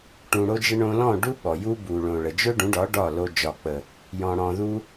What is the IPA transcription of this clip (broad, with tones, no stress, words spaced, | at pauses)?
ʈũ˧ɽo˦d͡ʒə˦ ɳõ˧lɔ̃˦˨ ɖu˦ ɓɔ˨ju˦ bu˨ɭõ˨ ɭə˨d͡ʒɵ˦ɖũ˨˦ɖɒ˨˦ ɖɒ˦˨lo˧ d͡ʒɒ˨k͡pə˨ | jɔ̃˨ ɽɔ̃˨ðu˧